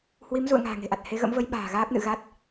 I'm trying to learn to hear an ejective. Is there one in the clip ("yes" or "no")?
no